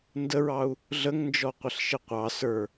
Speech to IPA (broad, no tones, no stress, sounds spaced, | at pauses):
n d ə ɹ ɑ u̯ | ɮ ə ŋ n d͡ʒ ɔ qʷ ɪ ɬ ʃ ɪ qʷ ɑ s ə˞